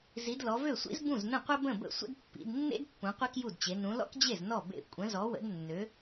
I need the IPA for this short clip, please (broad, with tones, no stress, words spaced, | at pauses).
zi˨˦dlɔ˨˦vø˥˩sʷḭ˥z bũ˥˩znə̃˥˩qʷə˥ bə̃˥˩bə̰˥˩ sʷə̰˥dpːḭ˨˦d nːḛ˥dpːũ˨˦ qʷe˥kju˥˩dt͡ɕe˨˦ nũ˨˦lɔ̰˥kd͡ʑe˥˩z nɔ˥˩ bḛ˥˩ kʷʼə̃˨˦zɔ˨˦wə̰˨˦dnːø˨˦